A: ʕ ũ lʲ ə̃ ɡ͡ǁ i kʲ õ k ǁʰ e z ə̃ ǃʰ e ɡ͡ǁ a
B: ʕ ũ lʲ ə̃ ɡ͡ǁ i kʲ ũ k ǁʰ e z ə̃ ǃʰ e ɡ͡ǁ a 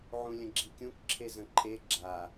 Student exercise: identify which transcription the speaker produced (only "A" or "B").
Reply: B